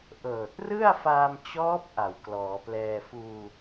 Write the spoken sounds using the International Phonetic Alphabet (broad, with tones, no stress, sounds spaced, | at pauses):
ʔ ɤː˨˩ t̚ r ɯ˥˩ a̯ f aː˧ m t͡ɕ ɔː˦˥ p̚ ʔ a˨˩ w k l ɔː˩˦ p l ɛː˧ f uː˧